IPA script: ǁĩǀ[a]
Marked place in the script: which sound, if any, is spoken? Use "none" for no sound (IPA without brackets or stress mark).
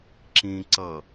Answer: ʌ